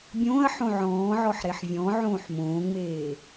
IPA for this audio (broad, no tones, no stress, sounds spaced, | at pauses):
bʲ õː ɐ̯ ħ õ ʕ ɔ̃ː ʕ ɔ ħ ɾ e ħ vʲ ɔ̃ ʕ õː ħ m õː ŋ͡m eː